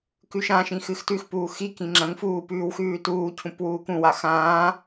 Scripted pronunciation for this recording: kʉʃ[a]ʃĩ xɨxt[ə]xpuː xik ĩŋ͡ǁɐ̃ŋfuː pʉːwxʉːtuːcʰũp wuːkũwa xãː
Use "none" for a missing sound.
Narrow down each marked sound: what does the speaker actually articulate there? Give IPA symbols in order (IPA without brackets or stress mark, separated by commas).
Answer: ã, ʉ